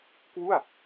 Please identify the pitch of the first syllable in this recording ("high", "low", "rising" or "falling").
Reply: falling